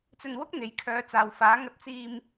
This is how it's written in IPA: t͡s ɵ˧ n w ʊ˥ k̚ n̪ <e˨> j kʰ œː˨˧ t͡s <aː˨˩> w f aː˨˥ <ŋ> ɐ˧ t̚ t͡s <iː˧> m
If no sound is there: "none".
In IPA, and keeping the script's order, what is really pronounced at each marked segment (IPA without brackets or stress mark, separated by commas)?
e˨, aː˨, ŋ, iː˧